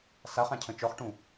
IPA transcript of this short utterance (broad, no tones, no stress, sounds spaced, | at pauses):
s a χ ã cʰ ə̃ t͡ʃ ɔ χ ʈ ũ